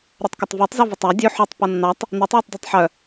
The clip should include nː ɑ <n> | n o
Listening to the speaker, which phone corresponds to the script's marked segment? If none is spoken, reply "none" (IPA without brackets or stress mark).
tˤ